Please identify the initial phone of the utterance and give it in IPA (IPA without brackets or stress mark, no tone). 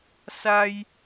s